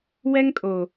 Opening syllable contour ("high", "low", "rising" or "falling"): high